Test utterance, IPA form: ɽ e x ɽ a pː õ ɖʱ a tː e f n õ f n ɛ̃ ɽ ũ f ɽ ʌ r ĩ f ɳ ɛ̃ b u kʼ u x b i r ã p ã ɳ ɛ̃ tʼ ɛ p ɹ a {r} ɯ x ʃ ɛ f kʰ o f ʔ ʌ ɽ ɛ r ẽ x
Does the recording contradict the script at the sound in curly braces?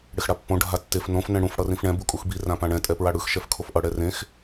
yes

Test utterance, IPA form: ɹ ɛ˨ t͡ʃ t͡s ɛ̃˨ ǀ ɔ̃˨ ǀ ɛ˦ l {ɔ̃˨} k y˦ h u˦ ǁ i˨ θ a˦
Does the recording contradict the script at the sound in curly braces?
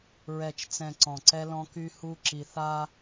yes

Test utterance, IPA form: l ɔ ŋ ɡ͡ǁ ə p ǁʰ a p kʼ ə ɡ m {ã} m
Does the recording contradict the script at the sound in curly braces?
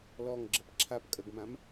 no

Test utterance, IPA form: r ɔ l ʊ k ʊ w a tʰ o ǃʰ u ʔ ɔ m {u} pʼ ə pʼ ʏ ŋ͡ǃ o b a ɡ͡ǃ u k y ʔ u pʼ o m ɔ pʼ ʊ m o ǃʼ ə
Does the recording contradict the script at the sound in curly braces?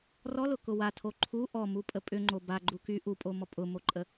no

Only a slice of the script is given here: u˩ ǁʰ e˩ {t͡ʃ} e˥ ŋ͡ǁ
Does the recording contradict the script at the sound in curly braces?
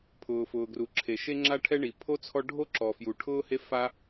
yes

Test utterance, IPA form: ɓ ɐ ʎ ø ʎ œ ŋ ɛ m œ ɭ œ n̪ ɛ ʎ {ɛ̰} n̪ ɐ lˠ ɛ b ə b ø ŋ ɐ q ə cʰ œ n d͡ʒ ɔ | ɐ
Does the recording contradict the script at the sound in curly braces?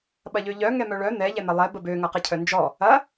yes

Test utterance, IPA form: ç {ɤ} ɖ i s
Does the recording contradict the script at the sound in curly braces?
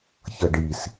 no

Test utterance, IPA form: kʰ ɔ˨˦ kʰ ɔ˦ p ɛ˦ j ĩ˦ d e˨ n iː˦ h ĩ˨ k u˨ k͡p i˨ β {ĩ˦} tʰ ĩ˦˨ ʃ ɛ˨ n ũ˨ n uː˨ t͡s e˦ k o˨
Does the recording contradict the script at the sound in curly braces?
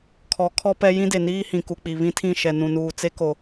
no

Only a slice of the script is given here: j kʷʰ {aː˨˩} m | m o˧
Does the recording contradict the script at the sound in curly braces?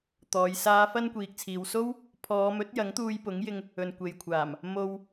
no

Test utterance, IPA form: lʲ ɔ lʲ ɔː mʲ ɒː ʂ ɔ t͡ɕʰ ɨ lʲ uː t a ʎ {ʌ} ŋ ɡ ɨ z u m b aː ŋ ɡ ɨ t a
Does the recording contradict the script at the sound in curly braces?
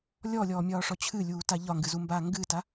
yes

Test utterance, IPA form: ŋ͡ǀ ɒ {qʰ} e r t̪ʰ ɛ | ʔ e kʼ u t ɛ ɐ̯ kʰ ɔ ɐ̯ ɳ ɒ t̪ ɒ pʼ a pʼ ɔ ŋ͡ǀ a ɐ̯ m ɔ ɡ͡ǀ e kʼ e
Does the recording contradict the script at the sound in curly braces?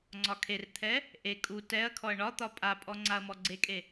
yes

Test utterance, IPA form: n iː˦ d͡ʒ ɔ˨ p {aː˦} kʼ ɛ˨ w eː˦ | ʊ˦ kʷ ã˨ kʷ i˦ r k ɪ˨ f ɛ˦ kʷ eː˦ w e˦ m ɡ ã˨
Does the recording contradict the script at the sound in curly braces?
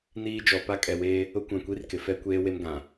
yes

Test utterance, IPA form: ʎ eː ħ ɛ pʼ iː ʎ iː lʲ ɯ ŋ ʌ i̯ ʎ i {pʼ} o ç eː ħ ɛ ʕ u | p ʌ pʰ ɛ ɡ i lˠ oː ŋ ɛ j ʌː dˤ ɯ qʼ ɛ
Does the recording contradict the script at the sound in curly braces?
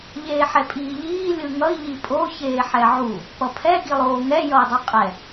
no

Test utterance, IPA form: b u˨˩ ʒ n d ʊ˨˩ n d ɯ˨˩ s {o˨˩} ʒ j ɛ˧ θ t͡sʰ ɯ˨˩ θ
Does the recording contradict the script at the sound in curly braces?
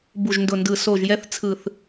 no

